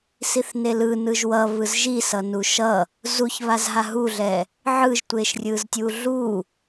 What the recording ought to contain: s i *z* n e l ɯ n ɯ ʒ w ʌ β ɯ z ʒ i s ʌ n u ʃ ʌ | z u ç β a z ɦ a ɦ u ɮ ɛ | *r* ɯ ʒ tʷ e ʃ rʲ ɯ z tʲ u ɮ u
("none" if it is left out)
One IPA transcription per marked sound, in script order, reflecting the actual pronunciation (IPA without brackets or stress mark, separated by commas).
θ, ʕ